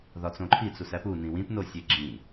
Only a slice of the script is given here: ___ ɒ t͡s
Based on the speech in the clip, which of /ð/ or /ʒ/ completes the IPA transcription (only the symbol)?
ð